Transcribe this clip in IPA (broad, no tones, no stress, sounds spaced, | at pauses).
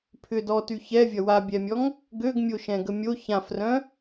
pʰ ʏ d ɔ t y ç ɛ vʲ ɐ w a bʲ ɛ mʲ ɔ ŋ | ɡ ø ɡ mʲ o ʃ ɛ̃ ɡ ə mʲ o ç ã f r œ̃